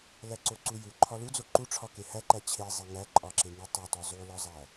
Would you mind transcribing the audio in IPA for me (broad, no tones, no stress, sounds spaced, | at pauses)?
l æ ǀ o ǀ u j u ǃʰ ɒ l u d͡z o ǃ u ʈ͡ʂʰ ɒ k e h æ ǃ æ t͡ɕʰ e zˤ e ŋ æ ǃʼ ɒ ǁ e ŋ i tˤ u t ɒ zˤ u l ɒ zˤ æ